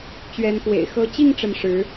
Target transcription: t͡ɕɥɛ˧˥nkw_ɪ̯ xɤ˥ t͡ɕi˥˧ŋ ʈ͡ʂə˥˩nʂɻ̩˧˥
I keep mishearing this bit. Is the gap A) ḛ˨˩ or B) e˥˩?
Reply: A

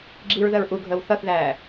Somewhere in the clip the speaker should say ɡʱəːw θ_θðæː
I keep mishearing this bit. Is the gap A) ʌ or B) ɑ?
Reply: A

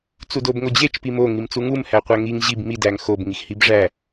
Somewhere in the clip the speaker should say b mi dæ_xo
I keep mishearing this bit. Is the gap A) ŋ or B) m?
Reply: A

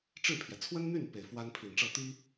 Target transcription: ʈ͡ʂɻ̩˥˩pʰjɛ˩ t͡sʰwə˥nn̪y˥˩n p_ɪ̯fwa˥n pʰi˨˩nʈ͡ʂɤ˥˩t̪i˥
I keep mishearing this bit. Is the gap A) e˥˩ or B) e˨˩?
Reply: B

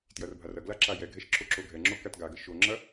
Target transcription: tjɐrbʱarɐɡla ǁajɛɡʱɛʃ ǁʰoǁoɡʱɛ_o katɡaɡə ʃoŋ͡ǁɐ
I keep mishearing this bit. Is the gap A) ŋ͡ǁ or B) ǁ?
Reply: A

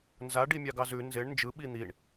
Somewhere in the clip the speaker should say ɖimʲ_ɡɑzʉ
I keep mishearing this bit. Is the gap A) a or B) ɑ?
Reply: B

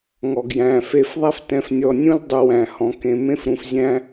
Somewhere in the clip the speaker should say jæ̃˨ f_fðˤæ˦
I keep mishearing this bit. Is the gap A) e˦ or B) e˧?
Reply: B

